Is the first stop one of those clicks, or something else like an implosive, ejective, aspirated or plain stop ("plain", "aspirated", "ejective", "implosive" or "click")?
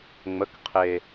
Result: plain